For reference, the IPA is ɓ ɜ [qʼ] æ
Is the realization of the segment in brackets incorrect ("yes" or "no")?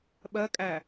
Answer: yes